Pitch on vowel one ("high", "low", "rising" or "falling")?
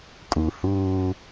low